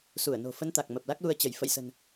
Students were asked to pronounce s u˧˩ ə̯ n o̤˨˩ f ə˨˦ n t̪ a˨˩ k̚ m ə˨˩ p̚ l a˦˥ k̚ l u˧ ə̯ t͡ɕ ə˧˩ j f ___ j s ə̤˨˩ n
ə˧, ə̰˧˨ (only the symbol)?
ə̰˧˨